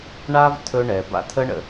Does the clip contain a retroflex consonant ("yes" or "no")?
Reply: yes